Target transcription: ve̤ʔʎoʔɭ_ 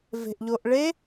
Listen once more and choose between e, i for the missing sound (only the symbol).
e